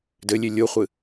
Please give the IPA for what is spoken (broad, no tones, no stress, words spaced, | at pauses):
dɘlʲe lʲoχʷɨ